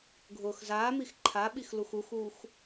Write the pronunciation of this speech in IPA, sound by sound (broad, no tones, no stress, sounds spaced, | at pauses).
ɡʱ ʊː x z aː m i x ǃʰ a ɓ i x l u x u x uː x